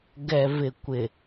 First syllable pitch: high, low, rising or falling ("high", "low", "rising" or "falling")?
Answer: low